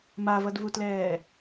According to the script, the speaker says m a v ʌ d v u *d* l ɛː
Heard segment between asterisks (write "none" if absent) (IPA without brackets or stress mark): t